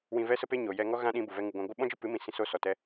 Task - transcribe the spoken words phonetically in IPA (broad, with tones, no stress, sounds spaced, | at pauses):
w ĩ˧ v ɛ˦ s ə˦ p e˦ ɲ o˨ j ɛ˧ ŋ ɔ˦ ɣ ã˦ ɗ ĩ˧ b u˨ v ɛ˧ ŋ ɨ˨ ɡʷ ã˧ ɡʷ ɨ˦ ɓ ɔ̃˦ d͡ʒ ɨ˦ p ɨ˨˦ m ĩ˧ s ĩ˧ s o˦˨ s ɔ˨ t ɛ˧